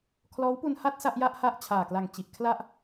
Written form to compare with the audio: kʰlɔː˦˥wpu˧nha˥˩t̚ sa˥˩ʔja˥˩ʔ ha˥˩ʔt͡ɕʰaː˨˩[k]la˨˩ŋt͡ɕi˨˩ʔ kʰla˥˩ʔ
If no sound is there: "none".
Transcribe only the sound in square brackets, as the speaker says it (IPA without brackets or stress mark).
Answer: k